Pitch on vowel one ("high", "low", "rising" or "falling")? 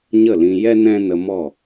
falling